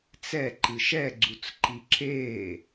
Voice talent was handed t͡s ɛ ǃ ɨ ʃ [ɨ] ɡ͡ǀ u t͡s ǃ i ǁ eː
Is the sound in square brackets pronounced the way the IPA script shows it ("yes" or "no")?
no